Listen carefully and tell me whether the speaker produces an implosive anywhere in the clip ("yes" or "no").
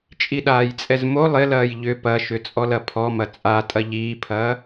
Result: yes